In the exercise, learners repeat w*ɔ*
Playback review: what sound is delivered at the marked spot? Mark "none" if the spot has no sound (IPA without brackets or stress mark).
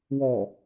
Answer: ɔ